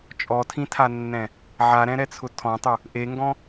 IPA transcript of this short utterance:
t͡ʃʼ ɔ tʰ ĩ tʰ a nː ɛ̃ | ʕ a ɾ ɛ̃ ɾ ɛ t͡sʰ ʊ tʰ ɔ̃ tˤ u | ʔ e ŋ ɡ ɔ̃

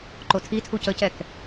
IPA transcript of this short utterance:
ǃ o tʰ i tʰ u c ə c ɛ k

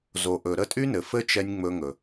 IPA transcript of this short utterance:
z o˨ ʔ ɵ˨ ɾ ə˦˨ tʼ y˦ n ɘ˨ f ɘ˦ t͡ʃ ɛ˧ nʲ ŋ͡m ɵ˧ ŋ ɵ˨

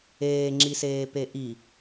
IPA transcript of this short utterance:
eː ŋ͡ǁ i s eː p e ʔ i

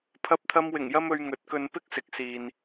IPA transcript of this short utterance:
pʰ ɐ˧ p̚ t̪ʰ ɐ˧ m w ɪ˨˩ ŋ j ɐ˥ m ɵ˧ ɥ ŋ ɵ˨˥ t̚ k ɵ˧ n p ɪ˥ k̚ s ɪ˨ k̚ s iː˨ n

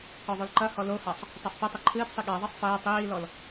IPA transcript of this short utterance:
k ɔ ðˤ o l ǃ ɐ h ɔ l o h a sˤ | tˤ a f p ɐ tˤ ɘ ǃʰ ɨː p sˤ i ɠ a ðˤ i sˤ f ɐː tˤ iː l ɔ l

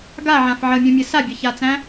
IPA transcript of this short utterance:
ɡ a ʕ ã f ʕ ə mʲ õ mʲ ə s a bʲ ə ç a t͡s æ̃

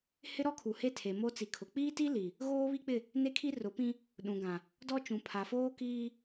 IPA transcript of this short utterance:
h ɪ˦ ɾ ɔ˦ kʰ u˨ h e˦ tʰ e˨ m o˦ t͡s i˨ kʰ ʊ˨ k͡p iː˦ t i˦ l i˨ | ɣ oː˦ β i˦ k͡p ɪ˦˨ | n e˦ kʰ i˦ r ʊ˨˦ p ĩ˦ | ɗ ũ˨ ɡ ã˨ | d ɔ˦ t͡ʃ ũ˨ pʰ a˨ f oː˦ k iː˦

